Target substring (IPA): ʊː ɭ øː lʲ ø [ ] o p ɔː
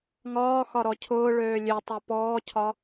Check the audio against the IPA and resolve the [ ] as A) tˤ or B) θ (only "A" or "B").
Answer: A